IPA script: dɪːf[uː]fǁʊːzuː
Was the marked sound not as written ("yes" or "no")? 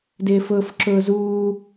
yes